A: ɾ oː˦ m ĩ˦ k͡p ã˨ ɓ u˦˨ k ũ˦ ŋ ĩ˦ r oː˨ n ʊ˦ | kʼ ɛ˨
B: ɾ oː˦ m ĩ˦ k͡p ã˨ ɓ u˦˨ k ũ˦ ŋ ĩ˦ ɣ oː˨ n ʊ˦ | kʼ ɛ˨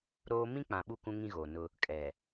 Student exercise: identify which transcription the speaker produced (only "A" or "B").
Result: B